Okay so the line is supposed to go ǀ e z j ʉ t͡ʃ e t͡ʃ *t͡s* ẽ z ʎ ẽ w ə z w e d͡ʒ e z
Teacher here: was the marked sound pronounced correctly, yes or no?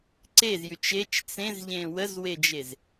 yes